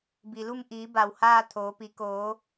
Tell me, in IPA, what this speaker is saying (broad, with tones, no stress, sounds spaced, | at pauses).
b i˩ l u˥˨ m ʔ iː˩˧ b a˩ w h aː˥˨ t̪ʰ oː˩˧ p i˩˧ k oː˩˧